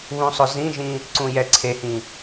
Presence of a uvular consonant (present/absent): absent